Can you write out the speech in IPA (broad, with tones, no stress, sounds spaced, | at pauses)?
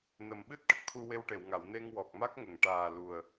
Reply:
n ə˨˩ m ɓ ɨ˦˥ t̚ ʈ ə˨˩ k̚ t̪ʰ u˧ w e˧ w ʈ e˨˩˨ w ŋ a˨˩˨ w n e˧ ŋ w ɔ˨˩ k̚ m a˦˥ k̚ ŋ ə˨˩˨ ŋ ʈ aː˨˩ l u˨˩ ə̯